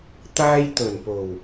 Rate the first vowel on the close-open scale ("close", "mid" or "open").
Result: open